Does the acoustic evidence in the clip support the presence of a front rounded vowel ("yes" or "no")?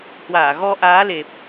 no